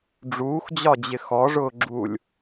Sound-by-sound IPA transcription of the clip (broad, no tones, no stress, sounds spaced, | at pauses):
ɖ͡ʐ uː x d͡ʑ ɒ d͡ʑ ɪ x ɔ ʐ ʊː ɡ͡ǁ uː lʲ